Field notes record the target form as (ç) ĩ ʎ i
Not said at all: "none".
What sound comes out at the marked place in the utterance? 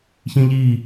ç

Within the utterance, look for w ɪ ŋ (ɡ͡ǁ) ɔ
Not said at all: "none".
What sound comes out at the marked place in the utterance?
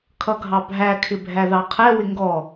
ɡ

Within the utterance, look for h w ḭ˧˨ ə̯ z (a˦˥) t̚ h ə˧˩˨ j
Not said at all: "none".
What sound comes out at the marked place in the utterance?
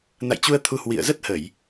ə˦˥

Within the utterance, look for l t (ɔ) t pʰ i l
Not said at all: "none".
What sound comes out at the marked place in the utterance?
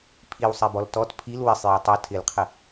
ɔ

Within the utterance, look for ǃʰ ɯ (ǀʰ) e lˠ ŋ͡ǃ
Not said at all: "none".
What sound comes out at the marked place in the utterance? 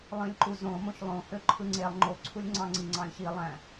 ŋ͡ǀ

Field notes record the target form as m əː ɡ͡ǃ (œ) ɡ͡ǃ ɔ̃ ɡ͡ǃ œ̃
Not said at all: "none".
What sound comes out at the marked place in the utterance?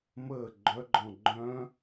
œ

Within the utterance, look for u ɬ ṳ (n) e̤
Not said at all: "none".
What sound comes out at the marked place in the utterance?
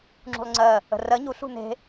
n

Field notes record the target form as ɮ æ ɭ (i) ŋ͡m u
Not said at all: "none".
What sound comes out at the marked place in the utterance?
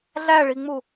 i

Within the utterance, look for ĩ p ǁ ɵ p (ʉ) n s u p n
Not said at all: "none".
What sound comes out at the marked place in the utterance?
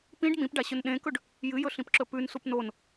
ʉ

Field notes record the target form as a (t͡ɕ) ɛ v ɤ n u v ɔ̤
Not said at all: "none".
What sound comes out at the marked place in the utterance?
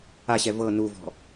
ɕ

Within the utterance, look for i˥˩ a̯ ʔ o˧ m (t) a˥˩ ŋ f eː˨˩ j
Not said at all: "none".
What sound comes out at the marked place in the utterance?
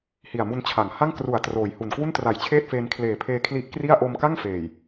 k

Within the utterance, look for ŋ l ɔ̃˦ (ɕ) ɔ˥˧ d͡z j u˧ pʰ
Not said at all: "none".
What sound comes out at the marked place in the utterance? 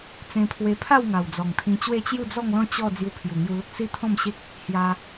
t͡ɕ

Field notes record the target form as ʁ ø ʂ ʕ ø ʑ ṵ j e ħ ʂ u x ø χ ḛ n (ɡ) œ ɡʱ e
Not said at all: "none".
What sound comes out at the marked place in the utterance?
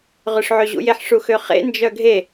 d͡ʒ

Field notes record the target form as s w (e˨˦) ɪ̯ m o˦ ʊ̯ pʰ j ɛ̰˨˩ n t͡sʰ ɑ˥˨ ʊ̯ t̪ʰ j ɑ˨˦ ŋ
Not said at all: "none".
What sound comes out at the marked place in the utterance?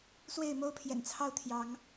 e˥˨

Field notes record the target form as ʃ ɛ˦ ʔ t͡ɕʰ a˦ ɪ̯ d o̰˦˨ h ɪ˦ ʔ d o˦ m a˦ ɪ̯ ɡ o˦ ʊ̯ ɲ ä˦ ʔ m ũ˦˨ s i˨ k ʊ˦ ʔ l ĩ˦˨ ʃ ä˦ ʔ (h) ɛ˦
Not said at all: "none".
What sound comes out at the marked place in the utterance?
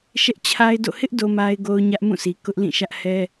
h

